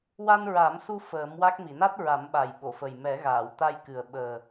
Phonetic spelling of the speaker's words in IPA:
w a˧ n ɹ a˨˩˦ m s u˧ f əː˨˩˦ m w a˦˥ k̚ m i˨˩˨ n a˦˥ t̚ ɹ a˨˩˦ m ɓ a˨˩ j ɓ o˨˩˨ f ə˨˩ j m ɛ˨˩˦ ɣ aː˨˩˨ w t̪ a˧ j k ɨ˨˩ ə̯ ɓ əː˨˩

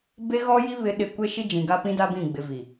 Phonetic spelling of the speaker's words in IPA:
b e˦ ɣ ɔ˦ j i˦ β ɪ˨˦ ɗ ɪ˨ kʷ e˦ ʃ i˦ d͡ʒ ĩ˨ ɡ a˦ p ĩ˦ d a˦ b ĩ˦˨ ɡ͡b ɪ˨ v i˨

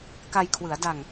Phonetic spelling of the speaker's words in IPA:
k a˧ j kʰ w ɯ˩˦ a̯ d a˧ ŋ

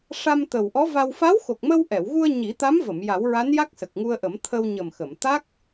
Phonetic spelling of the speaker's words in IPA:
ʂ a˧ m t̪ ə˨˩ w ʔ ɔ˧˥ v a˧ w f a˧˥ w x o˨˩ k̚ m ə˧ w ʔ ɛ˨˩˨ w ɣ u˧ ə̯ ɲ i˨˩˦ t̪ a˧˥ m v ə˨˩˨ m j a˨˩˦ w ɹ a˧˥ n j a˦˥ k̚ s ə˨˩ k̚ ŋ u˧ ə̯ ʔ ə˨˩˦ m t̪ʰ ə˧ w ɲ ə˨˩ m x ə˨˩˨ m t̪ a˦˥ k̚

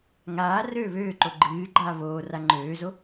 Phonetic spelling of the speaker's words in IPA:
ŋ aː r øː β øː ǃ o ɡ͡ǃ ɨː ɡ͡ǃ aː β oː r a ŋ͡ǃ øː z o

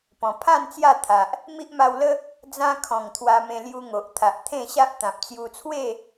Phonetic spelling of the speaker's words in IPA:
p ɔ̃˨˩ pʰ ã˥˧ n t͡s j a˥˧ t̪ʰ a˨ ʔ | m i˦ ʔ m a˧ w l ə˦ | d͡z ã˧ kʰ ɔ̃˨˩ ŋ t̪ʰ w a˧ m ẽ˧ l j u˧ ŋ o˨ ʔ t̪ʰ a˨ ʔ t̪ʰ ẽ˥˧ ɕ a˦ ʔ t̪ ã˨ p̚ t͡s j u˧ t͡sʰ w e˥˧

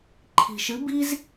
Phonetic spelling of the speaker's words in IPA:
ǃʰ i̤˨ ʃ ɨ˨˦ b i˦ z

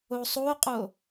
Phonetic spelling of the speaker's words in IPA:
o sˤ o qʼ o

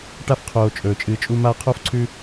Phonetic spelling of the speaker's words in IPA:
ʈ a˥ f qʰ oː˨ t͡ʃʼ ɵː˩ t͡ʃʼ ɨː˨ t͡ʃʼ u˦ m aː˦ qʰ oː˥ f ǀʰ ʉ˦

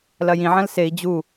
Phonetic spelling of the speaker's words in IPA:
l ɐ j ĩ ʕ ɐ̃ l s e i̯ d͡ʑ u

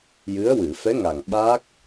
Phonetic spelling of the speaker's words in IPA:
j ɨ˧˥ ə̯ w ɨ˨˩˨ f ɛ˧˥ ŋ a˨˩ ŋ ɓ a˦˥ k̚

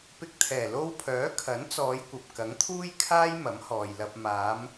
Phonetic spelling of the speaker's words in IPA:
p ɪ˧ k̚ t̪ʰ ɛː˨˩ l o˧ w pʰ œː˨˥ kʰ ɐ˨˥ n t͡s ɔː˨˧ j kʷ ɐ˨ p̚ k ɐ˨˥ ŋ t̪ʰ uː˥ j kʰ aː˥ j m ɐ˨˥ m h ɔː˨ j l ɐ˧ p̚ m aː˨˧ m

